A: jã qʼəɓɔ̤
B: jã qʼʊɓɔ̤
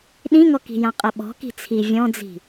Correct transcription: A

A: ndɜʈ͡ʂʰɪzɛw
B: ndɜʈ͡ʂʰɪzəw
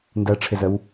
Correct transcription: B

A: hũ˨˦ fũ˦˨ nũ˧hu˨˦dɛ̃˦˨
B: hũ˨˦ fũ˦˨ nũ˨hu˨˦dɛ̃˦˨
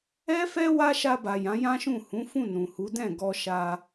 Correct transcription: B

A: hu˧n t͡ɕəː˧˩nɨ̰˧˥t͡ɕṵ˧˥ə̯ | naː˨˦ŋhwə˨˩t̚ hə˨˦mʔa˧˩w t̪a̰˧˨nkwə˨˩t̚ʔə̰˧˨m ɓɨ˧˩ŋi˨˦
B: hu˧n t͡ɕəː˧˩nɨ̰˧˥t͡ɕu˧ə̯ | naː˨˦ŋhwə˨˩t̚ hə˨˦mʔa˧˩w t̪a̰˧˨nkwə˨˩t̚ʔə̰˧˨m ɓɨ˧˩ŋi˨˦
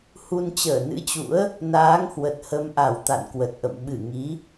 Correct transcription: A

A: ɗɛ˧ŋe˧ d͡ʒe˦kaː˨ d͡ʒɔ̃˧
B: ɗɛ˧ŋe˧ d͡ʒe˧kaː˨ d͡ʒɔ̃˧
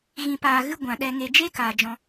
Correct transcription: A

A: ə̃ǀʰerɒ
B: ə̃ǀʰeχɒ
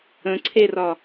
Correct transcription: A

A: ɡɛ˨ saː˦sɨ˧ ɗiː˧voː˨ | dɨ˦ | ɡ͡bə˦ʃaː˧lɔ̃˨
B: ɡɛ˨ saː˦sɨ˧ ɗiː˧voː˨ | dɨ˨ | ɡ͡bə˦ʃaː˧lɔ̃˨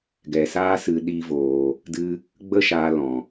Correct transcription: A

